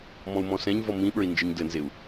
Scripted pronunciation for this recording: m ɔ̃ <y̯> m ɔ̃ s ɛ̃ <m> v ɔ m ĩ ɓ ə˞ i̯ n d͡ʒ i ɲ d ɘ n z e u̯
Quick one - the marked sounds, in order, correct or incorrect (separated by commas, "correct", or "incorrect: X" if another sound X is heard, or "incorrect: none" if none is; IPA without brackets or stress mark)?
incorrect: u̯, incorrect: ɲ